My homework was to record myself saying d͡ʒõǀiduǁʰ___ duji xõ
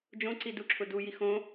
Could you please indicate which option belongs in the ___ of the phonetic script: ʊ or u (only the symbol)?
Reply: ʊ